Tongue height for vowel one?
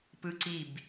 high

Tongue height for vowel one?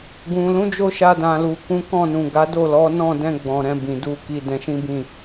high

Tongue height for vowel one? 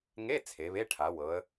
mid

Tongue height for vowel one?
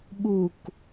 high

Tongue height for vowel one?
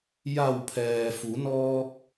low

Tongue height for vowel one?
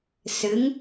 high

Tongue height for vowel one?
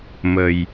mid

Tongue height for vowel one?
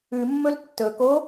high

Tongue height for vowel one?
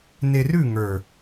mid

